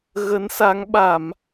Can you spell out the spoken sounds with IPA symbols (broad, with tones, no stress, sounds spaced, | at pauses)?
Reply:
ɣ ə˨˦ n s a˨˦ ŋ ɓ a˧˩˨ m